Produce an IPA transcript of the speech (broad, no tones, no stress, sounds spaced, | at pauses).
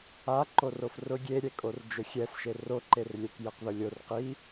a ǃ o r o f r ʊ ɡʲ e ɾʲ ɛ kʼ o r d͡ʒ ʊ xʲ ɛ s ʃ e r o ǃ e r lʲ ɛ k j ɛ q ð ʊ lʲ o r q i